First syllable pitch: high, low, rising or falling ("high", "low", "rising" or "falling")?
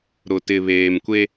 low